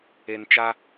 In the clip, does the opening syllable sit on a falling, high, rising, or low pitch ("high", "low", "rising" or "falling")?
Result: low